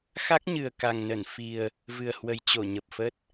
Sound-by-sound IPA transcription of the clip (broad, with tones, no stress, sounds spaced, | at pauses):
x a˦˥ k̚ ɲ ɨ˨˩ ə̯ k a˨˩ ŋ n ə˧˩ n f i˨˩ ə̯ | v ɨ˨˩ ə̯ h w ə˨˩ j t͡ɕ o˧˩ ɲ ə˨˩ p̚ f ə˦˥ t̚